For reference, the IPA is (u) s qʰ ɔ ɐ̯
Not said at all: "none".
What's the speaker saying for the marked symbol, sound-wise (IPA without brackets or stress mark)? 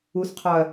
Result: u